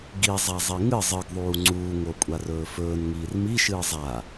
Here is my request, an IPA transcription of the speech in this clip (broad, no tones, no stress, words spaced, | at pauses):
ɡi zˤazˤiŋɨ zˤɨɡðˤuː ŋ͡ǀuː ŋokʷʼarɵːfɵːn ŋiːrmiʃɨː zˤa